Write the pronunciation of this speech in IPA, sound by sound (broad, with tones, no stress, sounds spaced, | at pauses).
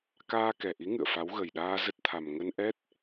k aː˧ k ɛ˨˩ ʔ i˨˦ ŋ ɨ̰˧˨ ə̯ f a˨˦ w ɣ ə˨˩ j ɗ aː˧ z ə˦˥ t̚ t̪ʰ a˨˩ m ŋ ə˧ n ʔ ɛ˦˥ t̚